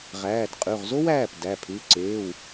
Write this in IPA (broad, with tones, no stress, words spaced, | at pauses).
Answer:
ʁæː˩˧˩dqʼʉ˩˧˩ʁzo˥w æː˩˧˩p dæ˩˧˩pʰʉ˩˧˩ ǀeː˩˧˩w